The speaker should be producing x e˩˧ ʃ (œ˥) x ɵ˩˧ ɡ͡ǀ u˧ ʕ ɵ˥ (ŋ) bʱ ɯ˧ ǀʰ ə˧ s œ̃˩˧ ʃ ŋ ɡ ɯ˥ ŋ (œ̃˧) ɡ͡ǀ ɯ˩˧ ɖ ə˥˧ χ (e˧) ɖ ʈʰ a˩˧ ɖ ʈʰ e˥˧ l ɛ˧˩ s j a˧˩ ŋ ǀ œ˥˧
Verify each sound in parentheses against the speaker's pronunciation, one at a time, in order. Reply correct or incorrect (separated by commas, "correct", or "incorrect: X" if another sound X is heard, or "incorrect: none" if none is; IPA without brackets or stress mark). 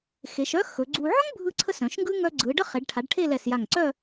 correct, correct, incorrect: œ˧, incorrect: e˩˧